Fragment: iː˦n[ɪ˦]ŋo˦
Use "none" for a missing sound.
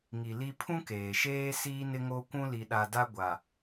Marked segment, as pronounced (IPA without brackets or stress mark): ɪ˦